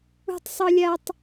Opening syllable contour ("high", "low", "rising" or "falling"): high